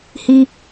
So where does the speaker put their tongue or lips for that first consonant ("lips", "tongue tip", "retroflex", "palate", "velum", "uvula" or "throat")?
throat